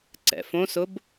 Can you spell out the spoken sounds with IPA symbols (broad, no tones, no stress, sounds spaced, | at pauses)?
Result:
ǀ ɛ̰ f õ s ʊ b